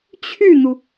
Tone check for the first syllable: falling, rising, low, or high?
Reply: falling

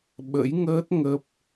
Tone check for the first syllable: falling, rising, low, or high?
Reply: rising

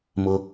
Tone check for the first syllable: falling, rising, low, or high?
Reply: high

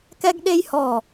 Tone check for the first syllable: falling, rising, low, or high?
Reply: high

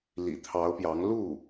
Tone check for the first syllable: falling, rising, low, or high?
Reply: low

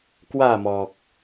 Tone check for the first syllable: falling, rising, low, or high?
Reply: falling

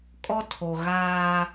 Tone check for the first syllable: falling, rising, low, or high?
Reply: high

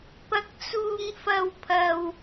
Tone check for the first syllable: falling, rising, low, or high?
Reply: high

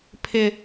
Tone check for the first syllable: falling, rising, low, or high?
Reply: high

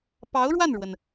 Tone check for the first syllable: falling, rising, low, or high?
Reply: rising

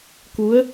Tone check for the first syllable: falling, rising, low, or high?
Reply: rising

